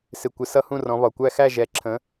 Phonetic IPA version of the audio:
s ɪ˨˩ kʷ ɪ˨˦ s ʌ˦˥ h ũ˥˧ r ɔ̃˨˦ β ɒ˨˩ kʷ æ˥˧ x æ˥˧ ʒ ɛ˨˩ ǁʰ ə̃˨˦

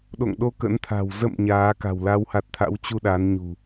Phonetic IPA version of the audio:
ɗ o̰˧˨ ŋ ɗ o˧ k ə̰˧˥ n t̪ʰ a̤˨˩ w z ə̰˧˨ m ɲ aː˨˦ k a̤˨˩ w l a˨˦ w h a˨˩ t̚ t̪ʰ a̰˧˥ w t͡ɕ u˧ ɗ a˨˦ n ɲ ṳ˨˩

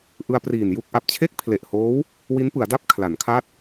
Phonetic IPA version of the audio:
ʔ ɯ˧ a̯ p r iː˨˩ n j u˥˩ k̚ ʔ a˨˩ p̚ t͡ɕʰ e˥˩ k̚ pʰ l e˨˩ ʔ h oː˦˥ w | w i˦˥ n p ɯ˩˦ a̯ d a˥˩ p̚ kʰ l a˩˦ n kʰ a˥˩ t̚

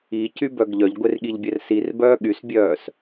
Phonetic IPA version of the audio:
i c y b œ ɡ ʎ œ ʎ ɡʷ e r ɠ i ʎ bʲ ɛ r s i r b œː ɠ y s bʲ œː s

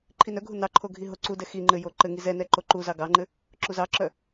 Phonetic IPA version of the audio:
ǃʰ i n œ ɡʱ u n ɑ ǃʰ o ɡʱ i ɦ o ǀ u d ɛ x i ŋ͡ǃ ɘ j o ǃ ɘ ŋ i z ɛ n ɛ ǃ o ǃ u z ɑ ɡ ɑ ŋ͡ǃ ɘ | ǁ u z ɑ ǁ œ

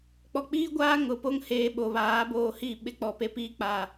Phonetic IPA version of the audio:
k͡p ɔ˨ k͡p iː˦ ɡʷ aː˦ ŋ ʊ˨ p o˦ ŋ h eː˨ ɓ o˨ β aː˨˦ b oː˦˨ h i˦˨ ɓ ɪ˦ k͡p ɔ˨ p e˦ p iː˦ k͡p a˨

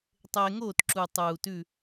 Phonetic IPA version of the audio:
tˤ eː˧ ŋ oː˥˨ t ǁ u˨˩ tˤ uː˨˩ t ʉ˥˨

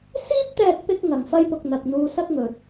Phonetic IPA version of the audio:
s iː˥ p̚ t̪ ɛː˧ k̚ p ɪ˧ k̚ ŋ ɐ˨ ŋ f ɐ˥ j p ʊ˧ k̚ n̪ ɐ˨ k̚ n̪ uː˧ s ɐ˥ k̚ ŋ ɵ˨ t̚

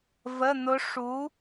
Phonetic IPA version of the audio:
v ə˧˥˧ n̪ ʊ˦˥ ʂ u˨˥

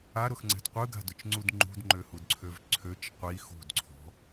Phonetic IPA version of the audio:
a ɾ ʊ x ŋ͡ǀ ɛ̤ d qʷ ɯ ɡ a̤ d ʊ t͡ʃ ŋ͡ǀ u d ŋ͡ǃ ṳ d ŋ͡ǃ ø h u d ǀʰ ø v ǀʰ ø t͡ʃ qʷ i x ṳ d ǀʰ ɔ̤

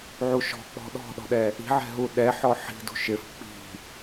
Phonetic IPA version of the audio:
ʕ u ʃ ɔ̤ k͡p ɔ̤ ɗ ɔ̤ ɗ ɔ̤ ɗ ɛ | i̤ ʕ ɛ̤ ɦ u ɗ ɛ ħ ɔ ħ i̤ d ṳ ʃ ɪ f k͡p i̤

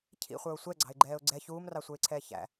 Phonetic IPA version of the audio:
cʰ ḭ χʷ ə˞ ʊ̯ sʷ ɛ ɡ͡ǀ ɑ̤ ɪ̯ ɡ͡ǃ ɛː ʊ̯ ɡ͡ǀ ɛ ç uː m r ɑ sʷ ə˞ ɪ̯ ǀʰ ɛː ç æ̰

